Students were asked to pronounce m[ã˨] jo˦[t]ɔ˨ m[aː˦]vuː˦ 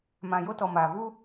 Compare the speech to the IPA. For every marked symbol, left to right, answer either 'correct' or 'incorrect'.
correct, correct, incorrect: aː˨

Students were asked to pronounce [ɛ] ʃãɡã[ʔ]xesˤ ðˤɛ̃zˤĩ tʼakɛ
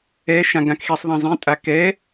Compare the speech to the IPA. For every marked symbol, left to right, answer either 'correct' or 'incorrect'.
correct, incorrect: k

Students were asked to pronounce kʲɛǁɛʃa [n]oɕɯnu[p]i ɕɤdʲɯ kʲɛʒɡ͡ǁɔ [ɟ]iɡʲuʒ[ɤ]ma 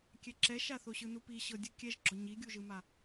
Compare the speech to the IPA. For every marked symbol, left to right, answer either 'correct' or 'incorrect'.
incorrect: θ, correct, incorrect: ɲ, incorrect: ɯ

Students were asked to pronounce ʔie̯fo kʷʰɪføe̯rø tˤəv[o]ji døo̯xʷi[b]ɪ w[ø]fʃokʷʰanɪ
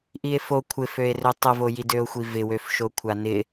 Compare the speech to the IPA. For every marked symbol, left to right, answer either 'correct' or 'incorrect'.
correct, incorrect: v, correct

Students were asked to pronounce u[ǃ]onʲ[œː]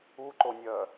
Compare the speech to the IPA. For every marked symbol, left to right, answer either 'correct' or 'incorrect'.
correct, correct

